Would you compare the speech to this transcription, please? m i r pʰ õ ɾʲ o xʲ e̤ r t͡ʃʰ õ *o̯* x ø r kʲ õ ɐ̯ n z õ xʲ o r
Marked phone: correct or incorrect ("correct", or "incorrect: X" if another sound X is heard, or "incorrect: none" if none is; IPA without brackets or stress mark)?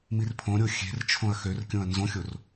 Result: incorrect: ɐ̯